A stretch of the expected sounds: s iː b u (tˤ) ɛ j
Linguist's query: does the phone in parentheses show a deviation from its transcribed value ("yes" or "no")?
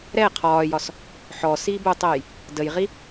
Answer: no